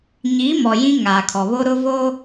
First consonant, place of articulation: palatal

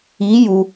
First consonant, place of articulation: palatal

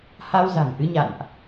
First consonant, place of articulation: glottal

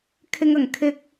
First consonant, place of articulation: velar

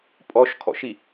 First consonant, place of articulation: labial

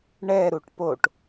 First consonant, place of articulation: retroflex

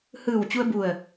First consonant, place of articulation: glottal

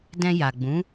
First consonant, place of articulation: alveolar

